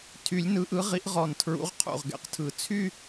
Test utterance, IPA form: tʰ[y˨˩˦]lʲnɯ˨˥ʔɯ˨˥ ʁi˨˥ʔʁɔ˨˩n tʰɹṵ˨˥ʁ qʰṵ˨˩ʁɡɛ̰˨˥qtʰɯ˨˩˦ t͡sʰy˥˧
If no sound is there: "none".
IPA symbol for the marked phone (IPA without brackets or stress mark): y˨˩˦